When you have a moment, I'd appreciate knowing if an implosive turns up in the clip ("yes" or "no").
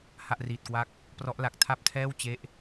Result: no